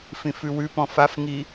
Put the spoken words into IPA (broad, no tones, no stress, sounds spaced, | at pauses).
f ĩ f ʉ w ʉ p ɔ̃ f a f ŋ i